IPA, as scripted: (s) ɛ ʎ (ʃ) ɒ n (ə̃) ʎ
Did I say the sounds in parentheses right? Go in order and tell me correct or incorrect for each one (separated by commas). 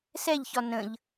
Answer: correct, incorrect, correct